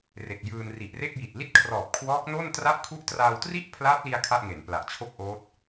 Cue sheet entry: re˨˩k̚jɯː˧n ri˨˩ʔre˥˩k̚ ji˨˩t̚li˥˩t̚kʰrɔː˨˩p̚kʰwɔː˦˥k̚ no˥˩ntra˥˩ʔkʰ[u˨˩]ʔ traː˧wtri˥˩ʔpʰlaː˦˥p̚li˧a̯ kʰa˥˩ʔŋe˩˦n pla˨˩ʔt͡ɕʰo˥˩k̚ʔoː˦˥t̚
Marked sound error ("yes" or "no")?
yes